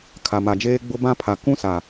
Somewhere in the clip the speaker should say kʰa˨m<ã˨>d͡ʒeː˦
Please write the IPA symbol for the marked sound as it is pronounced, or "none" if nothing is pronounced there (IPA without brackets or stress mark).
a˨